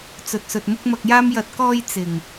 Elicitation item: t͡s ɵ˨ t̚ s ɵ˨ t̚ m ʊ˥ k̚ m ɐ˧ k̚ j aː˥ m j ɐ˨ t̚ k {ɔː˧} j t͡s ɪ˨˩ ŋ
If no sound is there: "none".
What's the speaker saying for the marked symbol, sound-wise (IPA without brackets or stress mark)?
ɔː˧